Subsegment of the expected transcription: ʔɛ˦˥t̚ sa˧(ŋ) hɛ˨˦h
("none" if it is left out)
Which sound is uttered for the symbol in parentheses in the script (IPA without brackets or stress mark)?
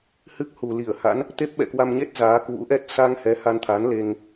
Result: ŋ